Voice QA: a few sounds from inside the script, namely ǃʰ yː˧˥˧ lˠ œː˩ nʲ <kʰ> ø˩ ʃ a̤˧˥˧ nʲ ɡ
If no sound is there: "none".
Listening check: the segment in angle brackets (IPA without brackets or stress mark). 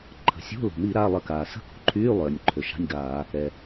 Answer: ǃʰ